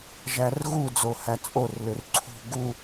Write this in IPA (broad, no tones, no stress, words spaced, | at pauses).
ʒærɣu d͡zohæt͡sʼor lʏrǀʰṳ ɡu